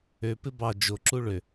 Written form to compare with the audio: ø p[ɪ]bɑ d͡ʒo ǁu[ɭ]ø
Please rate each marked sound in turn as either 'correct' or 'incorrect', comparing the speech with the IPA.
correct, correct

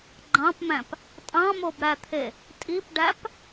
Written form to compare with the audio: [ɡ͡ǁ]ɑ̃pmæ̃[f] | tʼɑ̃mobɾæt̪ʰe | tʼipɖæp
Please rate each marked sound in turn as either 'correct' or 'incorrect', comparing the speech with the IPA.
incorrect, incorrect

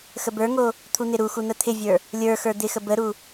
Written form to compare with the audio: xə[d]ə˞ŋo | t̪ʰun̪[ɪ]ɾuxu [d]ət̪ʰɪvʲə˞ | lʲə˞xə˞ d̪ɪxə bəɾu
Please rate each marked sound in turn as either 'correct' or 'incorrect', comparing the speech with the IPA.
incorrect, correct, incorrect

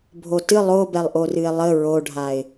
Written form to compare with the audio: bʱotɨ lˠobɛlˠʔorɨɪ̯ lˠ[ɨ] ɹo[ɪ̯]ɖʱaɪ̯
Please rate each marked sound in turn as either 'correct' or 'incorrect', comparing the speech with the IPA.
incorrect, incorrect

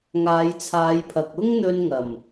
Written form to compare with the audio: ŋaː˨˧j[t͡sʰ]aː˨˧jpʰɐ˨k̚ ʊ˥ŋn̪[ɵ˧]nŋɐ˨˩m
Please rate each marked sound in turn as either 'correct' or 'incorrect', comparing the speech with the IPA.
correct, correct

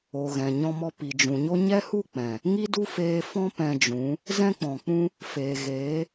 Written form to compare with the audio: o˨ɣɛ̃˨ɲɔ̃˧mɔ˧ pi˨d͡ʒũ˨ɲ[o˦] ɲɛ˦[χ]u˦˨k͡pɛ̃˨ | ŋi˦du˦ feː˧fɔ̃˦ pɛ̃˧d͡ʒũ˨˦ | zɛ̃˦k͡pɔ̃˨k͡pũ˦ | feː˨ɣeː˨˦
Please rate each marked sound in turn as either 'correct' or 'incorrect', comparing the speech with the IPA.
correct, incorrect

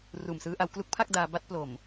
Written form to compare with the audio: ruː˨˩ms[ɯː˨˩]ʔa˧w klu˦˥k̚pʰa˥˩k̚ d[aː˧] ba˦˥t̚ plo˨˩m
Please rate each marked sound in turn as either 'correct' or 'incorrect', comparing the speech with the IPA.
incorrect, correct

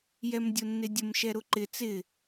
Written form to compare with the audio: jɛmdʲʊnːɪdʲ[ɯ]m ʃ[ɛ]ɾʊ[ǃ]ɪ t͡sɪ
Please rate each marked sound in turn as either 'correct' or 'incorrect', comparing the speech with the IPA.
incorrect, correct, correct

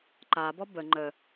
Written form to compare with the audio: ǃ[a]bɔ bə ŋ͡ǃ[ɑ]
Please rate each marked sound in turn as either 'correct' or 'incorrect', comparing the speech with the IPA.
correct, incorrect

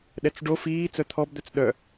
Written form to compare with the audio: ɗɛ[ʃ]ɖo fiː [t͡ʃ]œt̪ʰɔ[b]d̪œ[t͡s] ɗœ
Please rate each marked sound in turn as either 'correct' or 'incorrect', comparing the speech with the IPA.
incorrect, incorrect, correct, correct

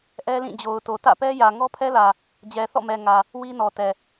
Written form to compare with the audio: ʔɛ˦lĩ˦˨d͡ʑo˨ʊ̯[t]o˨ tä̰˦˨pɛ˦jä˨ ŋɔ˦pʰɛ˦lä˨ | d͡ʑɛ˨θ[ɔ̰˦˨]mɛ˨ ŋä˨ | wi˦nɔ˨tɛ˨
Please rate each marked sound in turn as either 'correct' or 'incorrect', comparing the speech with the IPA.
correct, correct

